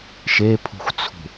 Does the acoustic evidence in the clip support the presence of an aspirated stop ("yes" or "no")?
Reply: yes